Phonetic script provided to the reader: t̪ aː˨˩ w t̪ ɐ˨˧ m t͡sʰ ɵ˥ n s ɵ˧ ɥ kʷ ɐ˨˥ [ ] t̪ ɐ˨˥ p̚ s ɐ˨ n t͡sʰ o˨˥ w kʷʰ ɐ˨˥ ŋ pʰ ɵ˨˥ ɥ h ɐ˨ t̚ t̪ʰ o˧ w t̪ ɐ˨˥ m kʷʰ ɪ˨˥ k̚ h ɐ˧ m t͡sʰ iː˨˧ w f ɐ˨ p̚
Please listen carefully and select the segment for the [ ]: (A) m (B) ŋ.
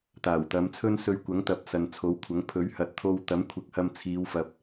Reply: B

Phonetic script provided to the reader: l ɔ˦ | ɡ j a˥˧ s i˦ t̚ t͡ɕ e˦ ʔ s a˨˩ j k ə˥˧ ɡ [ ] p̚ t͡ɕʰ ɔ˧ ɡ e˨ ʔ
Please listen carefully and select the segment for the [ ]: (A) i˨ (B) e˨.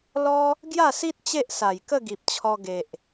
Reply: A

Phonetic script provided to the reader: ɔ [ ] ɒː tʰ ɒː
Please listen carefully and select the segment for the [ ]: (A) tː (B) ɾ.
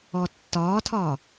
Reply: A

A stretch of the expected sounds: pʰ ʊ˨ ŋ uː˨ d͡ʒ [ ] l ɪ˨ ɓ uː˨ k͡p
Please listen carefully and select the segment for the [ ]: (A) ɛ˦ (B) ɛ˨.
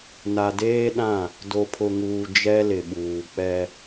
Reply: A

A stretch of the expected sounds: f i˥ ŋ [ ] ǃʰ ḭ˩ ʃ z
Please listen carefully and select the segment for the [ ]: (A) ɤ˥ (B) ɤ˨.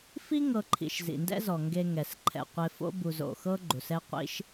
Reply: B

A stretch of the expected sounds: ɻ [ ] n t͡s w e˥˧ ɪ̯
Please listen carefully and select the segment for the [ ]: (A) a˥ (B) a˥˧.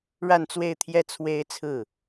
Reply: B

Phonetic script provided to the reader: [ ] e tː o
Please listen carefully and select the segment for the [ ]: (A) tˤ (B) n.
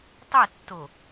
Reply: A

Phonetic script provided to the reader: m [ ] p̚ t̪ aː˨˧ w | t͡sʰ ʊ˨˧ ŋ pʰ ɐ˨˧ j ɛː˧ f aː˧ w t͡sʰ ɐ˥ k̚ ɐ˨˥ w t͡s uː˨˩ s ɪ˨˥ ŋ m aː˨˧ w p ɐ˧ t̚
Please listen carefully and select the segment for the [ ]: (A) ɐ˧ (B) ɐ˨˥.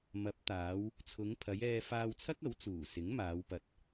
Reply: B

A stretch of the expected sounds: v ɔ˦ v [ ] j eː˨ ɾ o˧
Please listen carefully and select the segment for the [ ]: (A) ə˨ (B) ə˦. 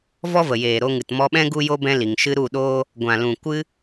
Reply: A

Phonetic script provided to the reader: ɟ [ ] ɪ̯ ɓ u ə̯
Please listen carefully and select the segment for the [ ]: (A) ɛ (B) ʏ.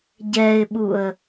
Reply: A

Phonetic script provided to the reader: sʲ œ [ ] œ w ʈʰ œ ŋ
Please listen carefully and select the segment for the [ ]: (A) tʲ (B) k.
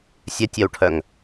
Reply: A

